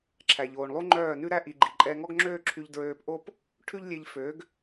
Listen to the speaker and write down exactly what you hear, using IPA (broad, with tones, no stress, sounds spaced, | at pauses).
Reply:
ǁʰ æ˨ ʎ oː˨ ɳ lˠ u˦ ŋ͡ǃ œː˦˨ n ʉ˦ ɾ æ˦ ʔ i˨ ɡ͡ǃ i˨ ǃʼ ɛ˧ ŋ ɔ˦ ɡ ŋ͡ǁ øː˦ ǁʰ y˧ ʎ d ɹ øː˧ p ʔ o˦ p | ʈʰ ʉ˦ ʎ lʲ e˧ ʎ f ø˨˦ ɡ